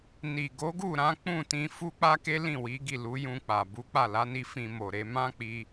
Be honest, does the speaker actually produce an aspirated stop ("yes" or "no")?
no